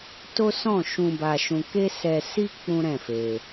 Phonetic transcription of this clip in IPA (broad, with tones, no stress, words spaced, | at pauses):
to˦sɔ̃˦˨ ʃũ˧ ba˧ʃũ˧ ke˦sɛ˧ si˦ k͡pũ˦ɾɛ̃˦˨fe˧